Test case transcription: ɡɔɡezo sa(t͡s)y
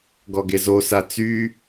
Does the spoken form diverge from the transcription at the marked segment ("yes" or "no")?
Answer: no